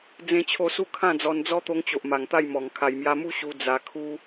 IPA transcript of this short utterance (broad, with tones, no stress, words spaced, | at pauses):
d͡zẽ˦t͡ɕʰo˥˧ su˥˧kʰã˥˧d͡zɔ˧n d͡zɔ˦t̪o˧ŋt͡ɕo˨ʔ ma˨˩ŋt̪a˥˧jmɔ˨˩ŋ kʰa˨˩jmja˧mu˦ ɕu˧ d͡za˧ kʰu˦